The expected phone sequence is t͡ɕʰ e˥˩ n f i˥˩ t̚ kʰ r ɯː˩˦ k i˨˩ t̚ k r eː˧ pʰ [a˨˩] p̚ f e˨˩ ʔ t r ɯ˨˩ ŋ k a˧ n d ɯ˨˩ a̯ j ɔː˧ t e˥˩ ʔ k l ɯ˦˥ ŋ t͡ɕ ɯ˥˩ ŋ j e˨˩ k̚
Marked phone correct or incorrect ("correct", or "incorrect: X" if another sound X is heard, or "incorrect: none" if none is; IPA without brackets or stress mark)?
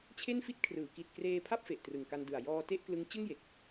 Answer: incorrect: a˥˩